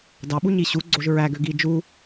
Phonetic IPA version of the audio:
dɑɓuɲi ɕuɡ͡ǀoʒ ɹæɡø ɡi d͡ʒu

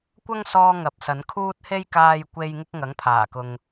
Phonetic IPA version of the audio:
kʷɐ˥ŋsɔː˧ ŋɐ˨p̚sɐ˨˧n kʰuː˧t̚he˧jkaː˨jkʷe˨j ŋɪ˥k̚ŋɐ˨˥ŋpʰaː˨˩kʊ˨ŋ

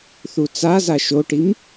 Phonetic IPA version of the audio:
θut͡saza ʃoʈim

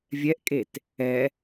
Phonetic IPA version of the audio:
vʲɛʔkʼet | ɛ

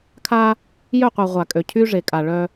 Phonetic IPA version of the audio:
kʰa˦ | jœ˦˨qʷa˨ ʁʷa˨kʼø˨ cʰy˦ʐe˨kʼa˨ ɭœ˦

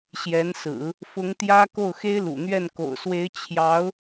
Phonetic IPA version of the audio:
ɕjɛ˧˥n sɹ̩˨˩˦ | fʊ˧˥ŋt̪jä˥ ko˥˩ʊ̯xe˥ɪ̯lṵ˨˩n̪ɥɛ˥˩n ko̰˨˩ʊ̯swe˧˥ɪ̯ t͡ɕʰjɑ˧˥ʊ̯

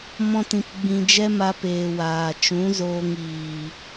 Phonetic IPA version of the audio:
mɔ̃˦tĩ˧pɡ͡bĩ˧ d͡ʒɛ˦ma˧peː˨ waː˨ t͡ʃũ˨˦ zoː˧ŋ iː˨

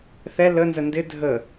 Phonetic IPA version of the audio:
θɛ lənzə ndɪ dʱə

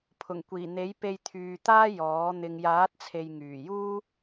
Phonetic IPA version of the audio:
pʰʊ˨˩ŋkʷiː˨˩n̪e˨˥j pe˧jt̪ʰyː˨t̪aː˥ jɔː˨˥ n̪ɪ˨ŋjaː˨˥t̚t͡sʰe˨j ŋyː˨˩ juː˥

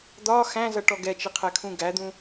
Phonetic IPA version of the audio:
d̪ɒ xæ̃zʌʈɔ ɡɛt͡ʃɪqʰɛkʰũ ɡæd̪ũ

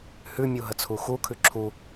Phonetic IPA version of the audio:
hʉmʲu ɦət͡sʰuxukʰʉ ǁʰu

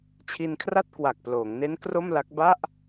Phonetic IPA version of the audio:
t͡ɕʰi˧nkʰra˥˩t̚ kwa˨˩k̚ploː˩˦ŋne˦˥n kro˥˩mla˦˥k̚ ba˥˩ʔ

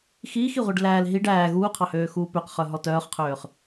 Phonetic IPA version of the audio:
xiːxiʁʷiɖ læːl ɦiɖ æː ɣuːqʰɑhøːxuː pøqχœɦɔ tœːχqʰøːχ

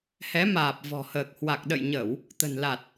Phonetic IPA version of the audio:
hɛ˨˦ maː˨˩p̚vɔ̤˨˩həː˨˩k̚hwa˨˩k̚ ɗə̰˧˨jɲə˧˩˨w | t̪ə̤˨˩nla˨˩t̚

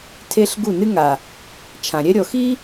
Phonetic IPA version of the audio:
tʰe˦ɬ ɡu˦˨nɨ˦ŋa˨ | t͡ʃʰã˨ ɾʲɛ˦ɾʲɔ˨ xi˦

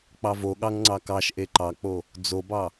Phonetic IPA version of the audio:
k͡pɑvoɠɑŋ ŋ͡ǀɑkɑʃʔe ǃɑk͡po | d͡zobɑ

